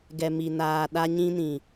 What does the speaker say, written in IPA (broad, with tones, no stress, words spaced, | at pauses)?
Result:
ɡɛ˨mi˨naː˨ ɗa˦ɲĩ˦nĩ˨